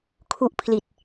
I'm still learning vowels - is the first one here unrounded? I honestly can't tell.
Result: no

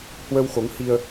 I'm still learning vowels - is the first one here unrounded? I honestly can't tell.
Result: yes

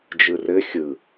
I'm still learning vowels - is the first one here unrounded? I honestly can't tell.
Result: yes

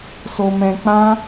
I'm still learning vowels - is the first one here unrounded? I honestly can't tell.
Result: no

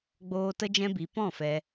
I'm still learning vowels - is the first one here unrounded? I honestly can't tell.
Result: no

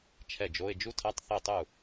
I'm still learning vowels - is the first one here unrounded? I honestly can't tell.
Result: yes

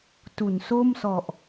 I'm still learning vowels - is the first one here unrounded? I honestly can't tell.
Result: no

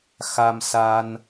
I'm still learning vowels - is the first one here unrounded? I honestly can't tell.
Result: yes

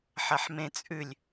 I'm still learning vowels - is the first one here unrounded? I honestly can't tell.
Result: yes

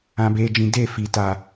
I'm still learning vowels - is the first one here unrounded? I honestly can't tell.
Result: yes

